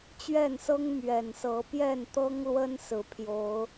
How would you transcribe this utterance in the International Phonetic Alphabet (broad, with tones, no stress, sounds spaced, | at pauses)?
t͡ɕ ɥ ɛ˥˨ n s ɤ˦ ŋ m ɥ ɛ˨˩ n s ɤ˨˦ p j ɛ˥˨ n t̪ ɤ˦ ŋ l w ə˦ n s ɹ̩˨˦ pʰ j o˨˦ ʊ̯